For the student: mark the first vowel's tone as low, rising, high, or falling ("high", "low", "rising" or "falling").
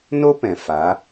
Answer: high